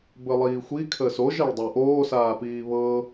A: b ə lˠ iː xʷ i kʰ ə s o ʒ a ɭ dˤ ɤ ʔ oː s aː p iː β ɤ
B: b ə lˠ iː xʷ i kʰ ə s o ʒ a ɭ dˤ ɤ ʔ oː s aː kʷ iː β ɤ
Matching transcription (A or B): A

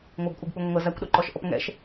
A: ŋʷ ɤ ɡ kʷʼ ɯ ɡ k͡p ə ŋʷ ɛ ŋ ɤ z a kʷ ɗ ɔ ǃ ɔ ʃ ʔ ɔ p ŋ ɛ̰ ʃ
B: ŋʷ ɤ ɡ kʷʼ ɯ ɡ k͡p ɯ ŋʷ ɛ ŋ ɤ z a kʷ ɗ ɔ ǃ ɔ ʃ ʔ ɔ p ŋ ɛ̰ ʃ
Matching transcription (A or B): B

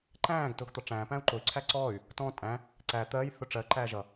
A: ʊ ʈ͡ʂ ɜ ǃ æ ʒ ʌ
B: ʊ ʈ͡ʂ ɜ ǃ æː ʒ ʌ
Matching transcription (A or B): B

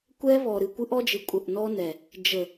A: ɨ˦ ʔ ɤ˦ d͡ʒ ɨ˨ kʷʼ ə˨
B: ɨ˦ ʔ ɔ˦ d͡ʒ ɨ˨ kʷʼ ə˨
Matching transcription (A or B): B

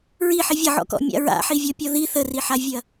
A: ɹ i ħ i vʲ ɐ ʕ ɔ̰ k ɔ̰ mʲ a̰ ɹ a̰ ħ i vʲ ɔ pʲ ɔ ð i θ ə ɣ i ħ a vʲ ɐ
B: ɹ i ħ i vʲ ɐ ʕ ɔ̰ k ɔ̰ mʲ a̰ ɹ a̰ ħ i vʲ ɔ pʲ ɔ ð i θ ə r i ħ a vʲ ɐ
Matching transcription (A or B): B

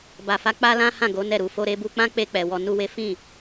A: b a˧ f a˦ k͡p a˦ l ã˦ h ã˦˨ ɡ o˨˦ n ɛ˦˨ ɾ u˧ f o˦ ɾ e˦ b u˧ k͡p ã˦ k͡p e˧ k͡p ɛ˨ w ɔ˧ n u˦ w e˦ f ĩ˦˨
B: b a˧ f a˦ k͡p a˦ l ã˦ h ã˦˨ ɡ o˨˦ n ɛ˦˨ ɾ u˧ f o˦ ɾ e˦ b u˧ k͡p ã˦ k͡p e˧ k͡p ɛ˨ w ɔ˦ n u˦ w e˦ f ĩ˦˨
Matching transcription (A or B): A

